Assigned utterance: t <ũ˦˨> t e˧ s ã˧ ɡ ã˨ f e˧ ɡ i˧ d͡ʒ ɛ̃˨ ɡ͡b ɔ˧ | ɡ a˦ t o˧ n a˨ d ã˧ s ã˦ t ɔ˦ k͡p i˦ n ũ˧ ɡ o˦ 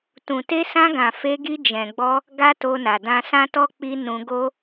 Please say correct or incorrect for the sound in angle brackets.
incorrect: ũ˨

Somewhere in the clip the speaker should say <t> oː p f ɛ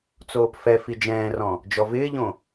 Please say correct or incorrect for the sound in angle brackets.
incorrect: t͡s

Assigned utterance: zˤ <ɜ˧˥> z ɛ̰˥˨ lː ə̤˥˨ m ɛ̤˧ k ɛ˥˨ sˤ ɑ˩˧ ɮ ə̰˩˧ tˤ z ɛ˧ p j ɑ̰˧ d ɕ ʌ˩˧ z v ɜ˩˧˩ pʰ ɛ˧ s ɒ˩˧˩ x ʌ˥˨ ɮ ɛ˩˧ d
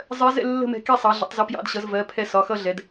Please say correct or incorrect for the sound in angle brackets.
correct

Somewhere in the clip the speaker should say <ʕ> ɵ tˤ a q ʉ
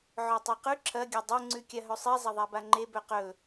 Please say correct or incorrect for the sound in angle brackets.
correct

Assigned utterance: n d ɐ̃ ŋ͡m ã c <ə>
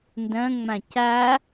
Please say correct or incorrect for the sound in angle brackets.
incorrect: a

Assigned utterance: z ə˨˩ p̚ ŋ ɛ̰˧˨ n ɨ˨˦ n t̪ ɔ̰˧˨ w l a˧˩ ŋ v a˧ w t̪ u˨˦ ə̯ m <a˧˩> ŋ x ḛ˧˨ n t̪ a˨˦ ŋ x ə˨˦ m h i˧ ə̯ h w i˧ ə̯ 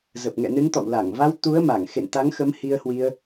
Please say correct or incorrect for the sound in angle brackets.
correct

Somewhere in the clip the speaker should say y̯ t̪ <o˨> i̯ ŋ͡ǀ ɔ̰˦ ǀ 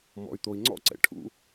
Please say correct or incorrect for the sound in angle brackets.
correct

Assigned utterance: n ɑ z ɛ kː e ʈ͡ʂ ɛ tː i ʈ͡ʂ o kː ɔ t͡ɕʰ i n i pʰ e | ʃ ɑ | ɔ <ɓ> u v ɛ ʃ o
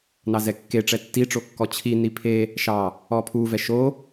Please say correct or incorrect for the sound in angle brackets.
incorrect: pʰ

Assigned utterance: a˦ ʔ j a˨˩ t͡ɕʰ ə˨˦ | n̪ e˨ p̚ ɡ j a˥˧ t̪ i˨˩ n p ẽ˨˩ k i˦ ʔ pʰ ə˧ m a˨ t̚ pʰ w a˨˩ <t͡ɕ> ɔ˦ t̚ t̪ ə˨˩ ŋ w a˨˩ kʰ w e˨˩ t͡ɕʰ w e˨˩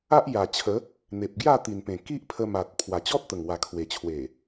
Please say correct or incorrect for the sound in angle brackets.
correct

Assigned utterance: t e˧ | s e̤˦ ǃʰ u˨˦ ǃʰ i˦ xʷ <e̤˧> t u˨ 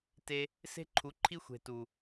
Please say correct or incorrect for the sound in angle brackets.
incorrect: e̤˨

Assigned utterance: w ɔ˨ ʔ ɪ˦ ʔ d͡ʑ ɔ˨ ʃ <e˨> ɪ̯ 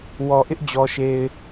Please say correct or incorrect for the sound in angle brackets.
correct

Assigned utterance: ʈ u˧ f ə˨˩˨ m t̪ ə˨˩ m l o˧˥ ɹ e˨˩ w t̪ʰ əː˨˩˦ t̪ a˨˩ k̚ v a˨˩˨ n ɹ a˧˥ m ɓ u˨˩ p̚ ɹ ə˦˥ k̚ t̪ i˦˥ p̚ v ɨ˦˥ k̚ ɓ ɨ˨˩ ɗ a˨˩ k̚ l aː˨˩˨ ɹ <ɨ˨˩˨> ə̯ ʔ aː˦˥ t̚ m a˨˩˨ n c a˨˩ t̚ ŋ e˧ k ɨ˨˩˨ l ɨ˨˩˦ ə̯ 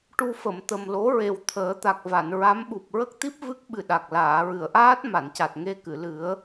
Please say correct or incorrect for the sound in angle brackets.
correct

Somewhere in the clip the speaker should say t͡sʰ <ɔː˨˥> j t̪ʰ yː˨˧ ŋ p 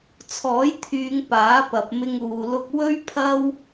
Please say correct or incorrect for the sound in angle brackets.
correct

